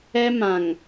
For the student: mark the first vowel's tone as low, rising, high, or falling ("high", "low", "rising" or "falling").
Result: high